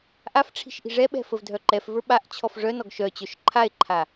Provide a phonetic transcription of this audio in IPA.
ʔafʈ͡ʂʰi̤ʃ ʔi̤ʐɛɓɛ̤ fəvdʱœǃɛfvə˞ ɓaʔt͡ɕʰɔf ʐœnɔɡ ʃœ t͡ɕœʃǃʰae̯ǃʰa

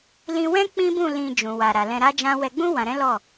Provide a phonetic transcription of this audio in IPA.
lĩ˧wɛ̃˦ k͡pĩ˦bũ˦˨ lĩ˧d͡ʒũ˨ wa˨ɾa˨lɛ̃˧ ɾa˦d͡ʒã˦ wɛ˧ɡ͡bũ˦ wã˧ɾɛ̃˦lɔ˦˨

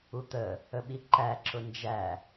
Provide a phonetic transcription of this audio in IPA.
ut̪ə | əɓiǃæ ǁʊnd͡ʒæ

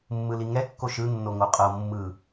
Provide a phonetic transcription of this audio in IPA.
mːɯliŋɛ kːoʃɯ nːoŋoqʼɤ mːɯ

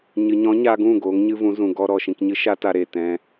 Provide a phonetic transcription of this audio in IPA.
ɲɨ˨ɲɔ̃˨˦ɲa˧ɡũ˦˨ ɡoː˨˦ŋɲɨ˦vũ˨˦ zũ˨ɡɔ˧ ɾɔ˨ʃĩ˧k ɲɨ˦ʃa˦ta˧ɾeː˨ tɛ̃˧

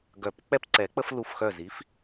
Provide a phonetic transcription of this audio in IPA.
ɡœ˨˩˦pk͡pɛ˦pǀɛ˨˩˦k͡pə˦f lu˧˩fxœ˧˩z i˨˦f

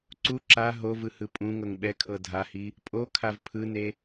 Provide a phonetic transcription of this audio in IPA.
ǀu ǁa ɦovɯ hɯpʼũŋɤŋ ɓɛkʰɤ dʱahi | pʼokʰav pʰɯne

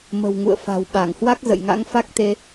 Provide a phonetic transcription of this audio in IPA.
mə̤˨˩wŋṵ˧˨ə̯ fa̤˨˩wɓa˧˩ŋhwa˦˥k̚ zə̰˧˨jŋa̰˧˥ŋfa˦˥k̚t̪e˧

